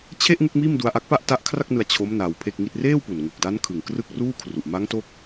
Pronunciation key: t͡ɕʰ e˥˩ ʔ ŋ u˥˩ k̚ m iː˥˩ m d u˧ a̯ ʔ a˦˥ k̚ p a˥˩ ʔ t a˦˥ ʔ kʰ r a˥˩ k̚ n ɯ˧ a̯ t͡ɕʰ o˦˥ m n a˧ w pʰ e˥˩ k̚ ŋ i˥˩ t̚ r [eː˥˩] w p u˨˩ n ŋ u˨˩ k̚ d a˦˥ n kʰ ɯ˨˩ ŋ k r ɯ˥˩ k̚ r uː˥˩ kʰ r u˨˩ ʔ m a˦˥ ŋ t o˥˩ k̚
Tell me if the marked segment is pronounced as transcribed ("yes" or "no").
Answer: yes